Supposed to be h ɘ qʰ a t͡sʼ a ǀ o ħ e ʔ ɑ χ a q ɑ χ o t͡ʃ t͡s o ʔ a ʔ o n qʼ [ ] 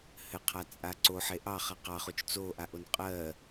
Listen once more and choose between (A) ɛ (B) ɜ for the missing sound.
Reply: B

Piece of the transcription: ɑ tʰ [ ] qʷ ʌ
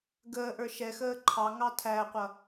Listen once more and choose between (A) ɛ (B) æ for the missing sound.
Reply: B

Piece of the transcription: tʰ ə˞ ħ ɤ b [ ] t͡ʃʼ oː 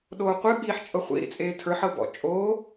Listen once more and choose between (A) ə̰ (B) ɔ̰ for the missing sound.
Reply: B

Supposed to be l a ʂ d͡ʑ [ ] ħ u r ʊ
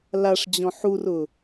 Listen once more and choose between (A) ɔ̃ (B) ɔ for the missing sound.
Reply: A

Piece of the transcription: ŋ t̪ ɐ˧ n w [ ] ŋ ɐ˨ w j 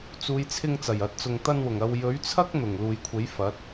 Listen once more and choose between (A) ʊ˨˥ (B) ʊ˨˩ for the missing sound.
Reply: B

